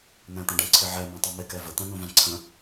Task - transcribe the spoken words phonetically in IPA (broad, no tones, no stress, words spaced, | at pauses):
n̪æ̃t̪ə̃ɖə̃ ǀʰɪʕɛ mæ̃tˤumɪ kɛvə t̪æ̃nũvæ̃ǀʰə̃